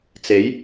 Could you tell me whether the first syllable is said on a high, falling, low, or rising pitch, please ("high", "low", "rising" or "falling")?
rising